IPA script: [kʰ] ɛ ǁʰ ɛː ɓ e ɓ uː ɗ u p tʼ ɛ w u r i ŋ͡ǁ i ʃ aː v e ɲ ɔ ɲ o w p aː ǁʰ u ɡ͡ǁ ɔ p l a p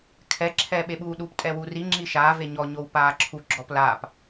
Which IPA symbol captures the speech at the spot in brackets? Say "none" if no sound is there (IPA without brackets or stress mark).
kʰ